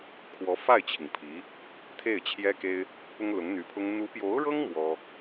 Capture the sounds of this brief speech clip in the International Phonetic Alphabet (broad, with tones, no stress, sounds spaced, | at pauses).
kʰ w ɔ˧˥ f a˥˩ ɪ̯ t͡ɕʰ i˩ ŋ pʰ i˧˥ | t̪ʰ e˥˩ ɪ̯ t͡ɕʰ j ɛ˥ k e˥ ɪ̯ | p ʊ˥ ŋ l ʊ˧˥ ŋ n̪ y˧˥ pʰ ʊ˥ ŋ n̪ u˧˥ p j o˧˥ ʊ̯ ɻ ɤ˥ ŋ m w ɔ˥